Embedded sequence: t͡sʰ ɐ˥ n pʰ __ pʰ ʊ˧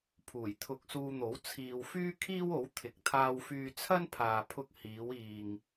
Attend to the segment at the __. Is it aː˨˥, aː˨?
aː˨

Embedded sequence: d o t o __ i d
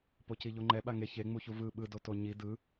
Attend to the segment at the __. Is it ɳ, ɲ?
ɲ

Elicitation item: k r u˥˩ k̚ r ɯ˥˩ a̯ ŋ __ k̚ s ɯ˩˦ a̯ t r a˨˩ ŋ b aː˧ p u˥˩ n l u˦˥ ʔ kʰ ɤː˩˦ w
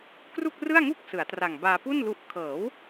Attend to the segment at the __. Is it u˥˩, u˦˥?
u˥˩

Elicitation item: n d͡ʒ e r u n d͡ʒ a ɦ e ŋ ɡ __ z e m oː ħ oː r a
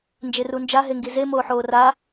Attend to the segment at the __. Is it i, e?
i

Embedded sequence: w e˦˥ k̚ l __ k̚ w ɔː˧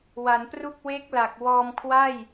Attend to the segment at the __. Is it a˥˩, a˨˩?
a˨˩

